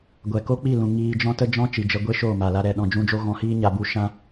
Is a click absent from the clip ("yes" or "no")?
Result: yes